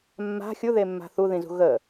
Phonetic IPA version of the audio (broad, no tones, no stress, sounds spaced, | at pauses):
mː a̤ xʲ u ð e mː a̤ θ u ð ĩ z ṳ ɣ ə